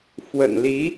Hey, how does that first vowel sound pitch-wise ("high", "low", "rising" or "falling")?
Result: low